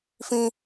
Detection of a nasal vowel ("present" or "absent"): present